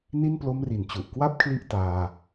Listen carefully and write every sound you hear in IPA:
n i˥˩ n p l o˦˥ m r i˩˦ n t͡ɕ u˨˩ ʔ k w a˥˩ p̚ kʰ l i˦˥ ʔ t aː˧

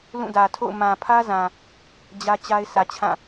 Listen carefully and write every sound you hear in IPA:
l ũ˦˨ d ä˨ tʰ o̰˦˨ ʊ̯ m ã˨ pʰ ä˦ z ã˨ | d͡ʑ ä˦ t͡ɕ a˦ ɪ̯ sʰ ä˨ t͡ɕʰ ã˦˨

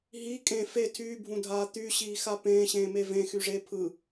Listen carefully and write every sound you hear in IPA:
ɦ i kʼ ẽ f e tʰ yː bʱ ũ dʱ aː t̪ y ɕ iː x a p ẽː ɕ ẽː m e v ẽ x y ʐ e pʰ ɯ

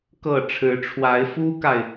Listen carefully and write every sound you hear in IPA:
k ɤ˥˩ ʈ͡ʂʰ ɻ̩˧˥ ʈ͡ʂʰ w a˧˥ ɪ̯ f u˥ k a˨ ɪ̯

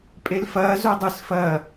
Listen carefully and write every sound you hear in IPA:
pʼ e l f ɐː z o dˤ ɨ s f ɐː

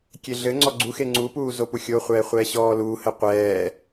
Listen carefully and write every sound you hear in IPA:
kʲ e ɮ ɘ ŋ͡ǀ ɔ ɡ͡ǀ u x e ŋ͡ǀ u p uː z o p u xʲ o χʷ ɛː χʷ ɛː ɕ ɔː l uː h ɘ qʷ ɛː

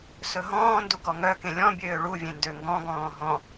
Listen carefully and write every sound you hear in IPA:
s ɵ ɦ ɔ̃ː n d u ɡ ɔ ŋ œ k ẽ lʲ ɔ̃ bʲ øː ɭ u vʲ ẽ n d ø ŋ ɡ ɔ̃ ɡ ɔ̃ː ɦ ɔ̃

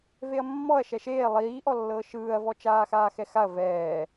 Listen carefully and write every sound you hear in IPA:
v e ɐ̯ mː ɔ ɐ̯ ʃ ɛ ʃ eː lˠ iː ʔ ɔ lː ɤː ʃ ɯː ɐ̯ v ɔ t͡ʃ aː x aː x ɛ x a ɐ̯ v ɛː

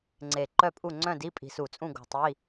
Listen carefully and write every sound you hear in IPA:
ŋ͡ǀ e˧˩ ǃ œ˥˨ pʼ u˥˨ ŋ͡ǀ œ̃˥˨ d i˧˥˧ pʼ i̤˧˩ s u˧˩˧ t͡sʼ ũ˥˨ ɡ o̤˧˩ tˤ i˧˥˧

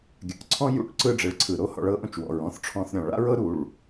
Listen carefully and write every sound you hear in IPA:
ɡʲ a̰˨ ʔ ǀʰ ɔ̃˦ j ṵ˦ ʈ ǀ ɯ˦ ɖ͡ʐ e˨ ɭ ǀʰ ɯ˨ ɾ o˦ h ɔ̰˧ ɭ ɤ˦ ʔ õ˦ t͡ʃ w ɔ̰˨ ɹ ɔ̃˦ θ ʈ͡ʂʰ ɔ̃˧ θ ɾʲ ɔ̃˨ ɭ a̰˦ ɹ ɤ˦ ɾ u˦˨ ɭ

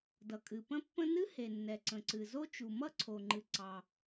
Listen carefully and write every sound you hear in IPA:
d ʌ˩ kʼ ɨ˩ p ə̃˥ pː ə̃˥ n ɨ˥ h e˩ nː ɛ˩ ǀ ə̃˩ ǀ ɨ˩ z o˥ t͡ʃ u˩ m ʌ˥ ǀʰ o˩ ŋ͡ǃ ɨ˩ ǀ ɑ˩

